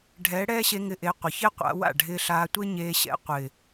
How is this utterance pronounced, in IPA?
ɖʱɛː˨˦ɽɛː˦ɕe˧ ŋɪ˧ʔe˨˦ qʷɪ˨çɪː˦qʷa̰˧wa̰˦˨ ɖʱɪː˧ɬaː˧tʷe˦ ɲeː˧ɕɛ̰˧ qʷɪː˨

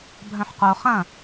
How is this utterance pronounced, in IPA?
bʱœ̃ħqo χɐ̃

